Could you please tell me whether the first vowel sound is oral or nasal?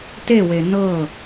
oral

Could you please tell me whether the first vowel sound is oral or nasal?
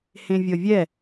nasal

